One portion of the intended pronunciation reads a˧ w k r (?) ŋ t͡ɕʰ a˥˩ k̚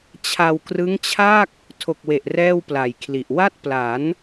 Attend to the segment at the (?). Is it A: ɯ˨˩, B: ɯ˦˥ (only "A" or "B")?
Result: B